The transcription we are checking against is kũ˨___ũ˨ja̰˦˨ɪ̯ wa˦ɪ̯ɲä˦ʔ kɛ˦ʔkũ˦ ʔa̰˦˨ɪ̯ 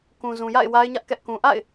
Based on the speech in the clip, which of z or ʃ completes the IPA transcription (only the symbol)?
z